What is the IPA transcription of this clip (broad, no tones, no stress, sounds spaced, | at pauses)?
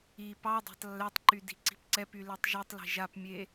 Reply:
i p ɑ dˤ a̤ tˤ lː ɛ tˤ ǃ y d i̤ ǀ i̤ p ǀ ɛ p y l e tˤ ʒ y tˤ l i̤ ʒ a p mʲ e